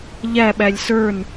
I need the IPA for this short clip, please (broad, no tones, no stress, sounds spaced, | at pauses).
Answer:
ʎ æ ɓ æ lʲ s ə˞ n